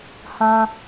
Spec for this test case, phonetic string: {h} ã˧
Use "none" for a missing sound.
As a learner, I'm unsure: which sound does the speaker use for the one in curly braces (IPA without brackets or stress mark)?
h